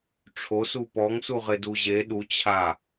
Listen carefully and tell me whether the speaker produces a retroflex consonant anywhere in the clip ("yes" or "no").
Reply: yes